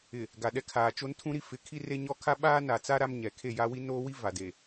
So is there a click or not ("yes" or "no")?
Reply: no